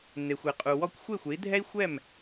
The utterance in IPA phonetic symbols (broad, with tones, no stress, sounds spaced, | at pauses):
n̪ e˩ xʷ e˩ qʼ u˩ w ɔ˧ kʷ xʷ e˥˩ xʷ e˩˥ i̯ dʱ ɛ˥ i̯ xʷ ɛ˥˩ m